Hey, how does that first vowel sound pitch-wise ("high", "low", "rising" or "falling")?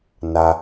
low